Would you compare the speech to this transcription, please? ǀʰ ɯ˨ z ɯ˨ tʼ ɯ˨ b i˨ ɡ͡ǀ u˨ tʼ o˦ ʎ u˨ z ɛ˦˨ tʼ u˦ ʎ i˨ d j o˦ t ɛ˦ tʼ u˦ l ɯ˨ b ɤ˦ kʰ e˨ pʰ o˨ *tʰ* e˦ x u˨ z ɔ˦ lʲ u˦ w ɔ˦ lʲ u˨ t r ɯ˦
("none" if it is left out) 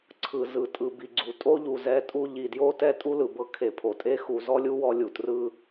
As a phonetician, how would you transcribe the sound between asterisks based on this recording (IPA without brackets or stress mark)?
tʼ